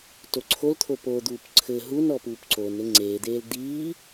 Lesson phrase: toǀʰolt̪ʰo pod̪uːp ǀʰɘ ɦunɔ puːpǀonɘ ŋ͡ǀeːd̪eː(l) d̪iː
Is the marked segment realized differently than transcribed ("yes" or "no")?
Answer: no